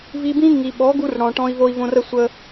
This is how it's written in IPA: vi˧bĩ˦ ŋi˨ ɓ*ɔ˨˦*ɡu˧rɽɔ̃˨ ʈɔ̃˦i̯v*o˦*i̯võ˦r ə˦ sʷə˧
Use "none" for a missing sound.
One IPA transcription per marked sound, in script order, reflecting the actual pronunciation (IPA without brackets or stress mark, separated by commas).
ɔ˨˦, o˦